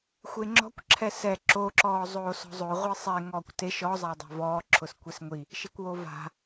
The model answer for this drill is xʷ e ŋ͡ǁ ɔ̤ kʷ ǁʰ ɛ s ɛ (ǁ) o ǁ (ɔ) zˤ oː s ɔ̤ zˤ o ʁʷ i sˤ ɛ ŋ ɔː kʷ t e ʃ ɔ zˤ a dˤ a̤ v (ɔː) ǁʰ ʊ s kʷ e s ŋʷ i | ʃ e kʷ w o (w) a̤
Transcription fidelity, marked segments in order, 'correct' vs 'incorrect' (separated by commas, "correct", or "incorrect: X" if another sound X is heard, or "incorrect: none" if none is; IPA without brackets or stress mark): correct, incorrect: ɔː, correct, incorrect: v